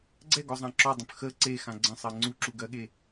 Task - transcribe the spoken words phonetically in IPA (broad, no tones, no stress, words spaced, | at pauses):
ɡ͡ǀɛɡɔzˤã ǁɔdˤə̃p xə ǀexã ɡ͡ǀə̃sˤɜ ŋ͡ǀuǁuɡɜɠe